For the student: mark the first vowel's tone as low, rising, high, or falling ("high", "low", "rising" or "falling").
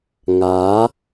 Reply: rising